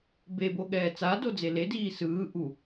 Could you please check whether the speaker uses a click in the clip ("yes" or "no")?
no